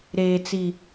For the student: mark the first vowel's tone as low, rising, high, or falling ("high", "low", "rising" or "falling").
high